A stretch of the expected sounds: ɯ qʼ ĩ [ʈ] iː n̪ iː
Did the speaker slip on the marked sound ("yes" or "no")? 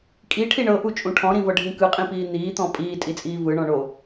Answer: yes